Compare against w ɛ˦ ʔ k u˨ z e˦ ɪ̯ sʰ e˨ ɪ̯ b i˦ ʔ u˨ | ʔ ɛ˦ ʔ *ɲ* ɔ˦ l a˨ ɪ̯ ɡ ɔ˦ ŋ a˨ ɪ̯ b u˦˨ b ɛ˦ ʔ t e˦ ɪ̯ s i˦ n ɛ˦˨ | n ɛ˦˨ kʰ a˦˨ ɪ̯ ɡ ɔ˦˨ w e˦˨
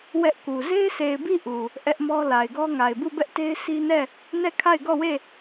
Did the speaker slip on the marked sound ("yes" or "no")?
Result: yes